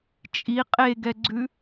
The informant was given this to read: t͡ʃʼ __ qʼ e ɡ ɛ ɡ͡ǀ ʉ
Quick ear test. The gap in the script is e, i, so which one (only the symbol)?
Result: i